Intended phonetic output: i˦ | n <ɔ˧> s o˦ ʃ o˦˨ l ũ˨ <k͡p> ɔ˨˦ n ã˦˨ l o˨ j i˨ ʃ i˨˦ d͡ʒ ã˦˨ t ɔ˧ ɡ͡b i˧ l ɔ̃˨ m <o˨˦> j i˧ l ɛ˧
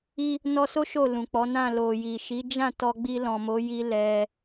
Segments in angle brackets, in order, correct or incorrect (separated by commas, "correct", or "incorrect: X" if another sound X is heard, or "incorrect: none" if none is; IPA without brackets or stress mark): correct, correct, correct